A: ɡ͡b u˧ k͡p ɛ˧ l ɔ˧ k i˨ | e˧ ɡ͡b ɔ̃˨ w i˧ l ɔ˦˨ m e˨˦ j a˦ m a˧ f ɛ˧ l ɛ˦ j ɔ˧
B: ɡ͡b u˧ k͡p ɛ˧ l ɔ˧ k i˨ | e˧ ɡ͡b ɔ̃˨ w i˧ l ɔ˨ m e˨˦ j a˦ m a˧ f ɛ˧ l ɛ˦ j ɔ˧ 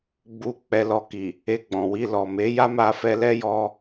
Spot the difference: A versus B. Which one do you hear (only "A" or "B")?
B